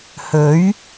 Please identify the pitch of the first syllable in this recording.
rising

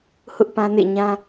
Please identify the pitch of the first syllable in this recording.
high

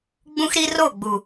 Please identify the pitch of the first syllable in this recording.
high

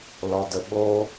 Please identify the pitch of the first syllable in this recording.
low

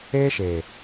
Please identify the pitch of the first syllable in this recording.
high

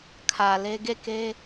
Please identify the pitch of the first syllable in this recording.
low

